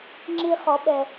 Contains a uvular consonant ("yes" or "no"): yes